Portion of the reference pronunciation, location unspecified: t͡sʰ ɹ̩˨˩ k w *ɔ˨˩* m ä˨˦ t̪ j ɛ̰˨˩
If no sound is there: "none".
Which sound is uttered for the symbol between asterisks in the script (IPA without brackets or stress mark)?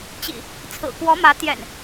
ɔ˨˦